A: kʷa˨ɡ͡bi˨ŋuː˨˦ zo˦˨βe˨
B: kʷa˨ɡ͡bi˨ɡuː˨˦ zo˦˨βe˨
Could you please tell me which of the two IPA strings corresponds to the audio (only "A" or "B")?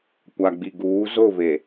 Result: B